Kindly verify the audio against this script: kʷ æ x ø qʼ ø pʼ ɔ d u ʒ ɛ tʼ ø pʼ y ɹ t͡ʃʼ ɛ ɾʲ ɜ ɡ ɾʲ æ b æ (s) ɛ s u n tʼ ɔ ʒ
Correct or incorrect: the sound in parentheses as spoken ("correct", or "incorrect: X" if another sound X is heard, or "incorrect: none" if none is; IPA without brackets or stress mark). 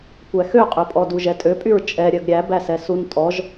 correct